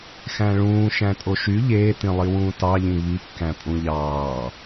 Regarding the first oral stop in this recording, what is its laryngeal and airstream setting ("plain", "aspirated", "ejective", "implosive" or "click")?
ejective